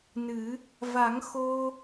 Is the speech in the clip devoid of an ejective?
yes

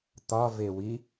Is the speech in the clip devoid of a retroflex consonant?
yes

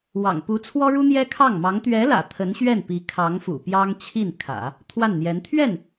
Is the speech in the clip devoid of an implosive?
yes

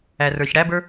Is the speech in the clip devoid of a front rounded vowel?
yes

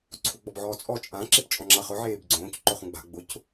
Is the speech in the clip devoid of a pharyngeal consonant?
no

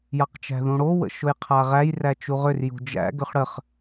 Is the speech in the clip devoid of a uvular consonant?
no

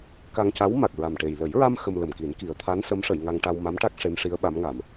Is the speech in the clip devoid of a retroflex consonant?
no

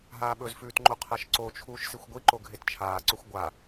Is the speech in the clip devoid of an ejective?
yes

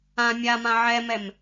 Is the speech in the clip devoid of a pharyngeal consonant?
no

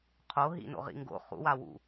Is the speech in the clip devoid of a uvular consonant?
no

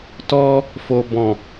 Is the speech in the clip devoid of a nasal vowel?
no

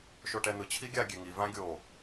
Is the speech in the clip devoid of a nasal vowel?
no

